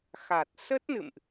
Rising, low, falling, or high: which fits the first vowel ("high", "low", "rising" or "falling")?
low